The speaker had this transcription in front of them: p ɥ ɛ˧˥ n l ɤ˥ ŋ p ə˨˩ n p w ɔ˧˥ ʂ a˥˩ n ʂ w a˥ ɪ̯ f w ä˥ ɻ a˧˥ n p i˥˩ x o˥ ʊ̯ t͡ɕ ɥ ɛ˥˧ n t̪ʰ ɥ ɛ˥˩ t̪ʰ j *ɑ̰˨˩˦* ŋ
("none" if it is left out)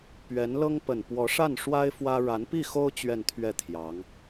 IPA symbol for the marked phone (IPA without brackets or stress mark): ɑ˧˥